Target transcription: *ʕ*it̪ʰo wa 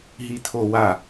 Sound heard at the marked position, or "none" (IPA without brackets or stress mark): ɦ